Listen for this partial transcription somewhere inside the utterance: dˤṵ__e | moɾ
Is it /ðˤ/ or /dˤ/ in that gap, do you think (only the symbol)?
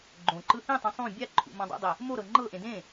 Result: dˤ